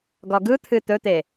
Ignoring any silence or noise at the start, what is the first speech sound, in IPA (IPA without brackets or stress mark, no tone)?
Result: ɡ